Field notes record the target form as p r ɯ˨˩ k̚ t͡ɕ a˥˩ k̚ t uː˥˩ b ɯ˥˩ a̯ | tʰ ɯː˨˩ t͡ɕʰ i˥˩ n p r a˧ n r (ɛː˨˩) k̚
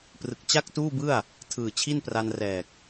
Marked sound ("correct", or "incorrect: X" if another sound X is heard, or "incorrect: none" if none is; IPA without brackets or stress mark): correct